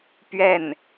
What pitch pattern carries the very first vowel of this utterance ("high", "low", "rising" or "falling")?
falling